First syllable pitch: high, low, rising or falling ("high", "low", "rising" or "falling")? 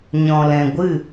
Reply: low